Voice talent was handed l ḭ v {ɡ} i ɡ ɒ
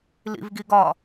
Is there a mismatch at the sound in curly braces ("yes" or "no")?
no